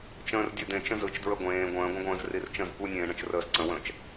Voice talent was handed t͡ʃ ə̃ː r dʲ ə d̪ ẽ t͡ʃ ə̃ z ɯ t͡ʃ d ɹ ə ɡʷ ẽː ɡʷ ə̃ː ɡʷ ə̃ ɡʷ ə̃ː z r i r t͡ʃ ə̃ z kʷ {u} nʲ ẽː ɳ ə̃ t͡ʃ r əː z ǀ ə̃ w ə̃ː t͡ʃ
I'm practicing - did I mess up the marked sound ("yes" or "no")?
yes